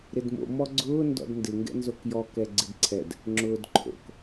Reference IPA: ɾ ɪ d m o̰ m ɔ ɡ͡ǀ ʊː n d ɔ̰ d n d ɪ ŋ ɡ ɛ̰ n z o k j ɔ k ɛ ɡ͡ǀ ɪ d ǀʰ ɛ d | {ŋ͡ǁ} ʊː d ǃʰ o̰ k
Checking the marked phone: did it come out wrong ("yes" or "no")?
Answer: no